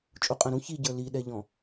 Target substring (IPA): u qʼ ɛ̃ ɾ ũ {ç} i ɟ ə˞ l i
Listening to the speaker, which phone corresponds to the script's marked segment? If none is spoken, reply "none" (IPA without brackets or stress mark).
ç